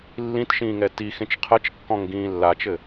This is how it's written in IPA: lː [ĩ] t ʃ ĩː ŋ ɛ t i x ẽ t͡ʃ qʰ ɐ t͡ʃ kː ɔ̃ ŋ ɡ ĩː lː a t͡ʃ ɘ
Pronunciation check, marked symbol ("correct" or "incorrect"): correct